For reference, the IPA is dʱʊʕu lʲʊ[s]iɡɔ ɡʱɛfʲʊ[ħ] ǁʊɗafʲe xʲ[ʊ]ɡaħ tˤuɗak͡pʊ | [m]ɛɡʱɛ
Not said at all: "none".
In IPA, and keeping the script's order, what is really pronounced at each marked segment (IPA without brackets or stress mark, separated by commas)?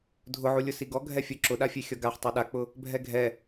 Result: s, none, ɔ, bʱ